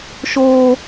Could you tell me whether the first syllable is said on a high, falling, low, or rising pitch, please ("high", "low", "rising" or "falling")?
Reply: high